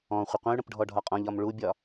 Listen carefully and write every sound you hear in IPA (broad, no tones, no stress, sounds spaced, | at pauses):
ɔ̃ χʷ ə qʷ ə̃ y̯ ɽ ə̃ p ɖʱ ɔ ɖʱ ɒ qʼ ɔ̃ ʎ ɒ m ɭ u bʲ ɒ